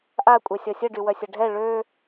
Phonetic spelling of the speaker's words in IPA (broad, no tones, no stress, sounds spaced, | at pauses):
ʔ a kʷʼ ɛ sʲ ɔ sʲ ə ɖ y w œ sʲ ɐ ɖʱ ɛ ɭ ø